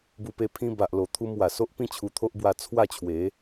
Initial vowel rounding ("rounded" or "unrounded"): rounded